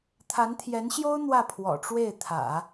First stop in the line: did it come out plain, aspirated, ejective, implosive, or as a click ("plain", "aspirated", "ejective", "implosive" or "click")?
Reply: aspirated